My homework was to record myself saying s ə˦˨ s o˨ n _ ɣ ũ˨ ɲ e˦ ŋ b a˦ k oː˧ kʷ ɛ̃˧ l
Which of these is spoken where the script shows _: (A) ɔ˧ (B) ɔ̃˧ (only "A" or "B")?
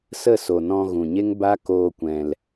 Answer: B